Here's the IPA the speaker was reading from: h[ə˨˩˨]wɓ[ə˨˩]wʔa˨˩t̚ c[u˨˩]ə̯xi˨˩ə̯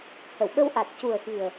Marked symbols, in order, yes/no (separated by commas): yes, no, yes